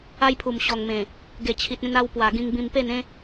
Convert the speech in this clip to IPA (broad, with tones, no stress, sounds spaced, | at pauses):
a˦ j pʰ u˨˩ m ɕ ɔ˨˩ ŋ m ẽ˨˩ | ɡ e˨˩ t͡ɕʰ i˨ t̚ ẽ˧ n a˧ w p w a˨˩ ɡ ĩ˧ ŋ b ĩ˧ m p e˥˧ n ẽ˦